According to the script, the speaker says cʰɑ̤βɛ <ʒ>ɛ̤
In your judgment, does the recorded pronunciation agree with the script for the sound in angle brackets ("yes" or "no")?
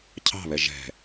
yes